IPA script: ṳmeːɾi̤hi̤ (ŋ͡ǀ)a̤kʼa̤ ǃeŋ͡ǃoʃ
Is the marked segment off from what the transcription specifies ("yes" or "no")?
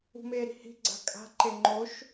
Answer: yes